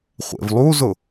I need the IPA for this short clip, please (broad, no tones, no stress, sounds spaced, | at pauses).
χʷ ḛ v lˠ u z ʊ